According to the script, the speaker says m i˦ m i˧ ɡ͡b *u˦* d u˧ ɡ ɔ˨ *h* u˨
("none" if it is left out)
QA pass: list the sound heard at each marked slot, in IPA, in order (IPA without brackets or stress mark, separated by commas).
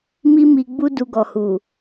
u˦, h